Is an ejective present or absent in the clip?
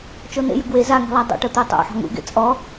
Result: present